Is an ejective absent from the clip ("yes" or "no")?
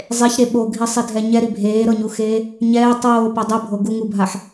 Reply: yes